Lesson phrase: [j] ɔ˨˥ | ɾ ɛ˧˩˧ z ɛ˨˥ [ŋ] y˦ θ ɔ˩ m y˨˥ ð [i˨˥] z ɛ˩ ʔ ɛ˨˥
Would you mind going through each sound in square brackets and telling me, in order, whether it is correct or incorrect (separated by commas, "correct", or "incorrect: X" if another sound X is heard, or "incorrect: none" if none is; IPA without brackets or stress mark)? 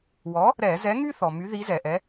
incorrect: w, correct, correct